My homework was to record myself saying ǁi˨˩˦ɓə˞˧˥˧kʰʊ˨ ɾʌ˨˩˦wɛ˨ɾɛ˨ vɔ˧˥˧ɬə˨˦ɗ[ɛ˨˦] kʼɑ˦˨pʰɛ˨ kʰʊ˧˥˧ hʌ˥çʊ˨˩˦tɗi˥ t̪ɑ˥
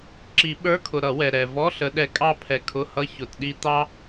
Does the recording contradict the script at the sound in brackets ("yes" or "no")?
no